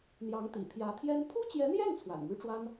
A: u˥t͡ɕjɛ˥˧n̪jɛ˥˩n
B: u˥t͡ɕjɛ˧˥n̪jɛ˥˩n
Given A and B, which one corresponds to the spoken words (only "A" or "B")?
B